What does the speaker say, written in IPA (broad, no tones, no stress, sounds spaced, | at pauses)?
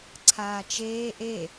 ǀʰ aː t͡ʃ eː ʔ e